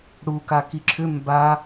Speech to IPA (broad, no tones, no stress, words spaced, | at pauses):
ɽu kakiǁʰʏ mba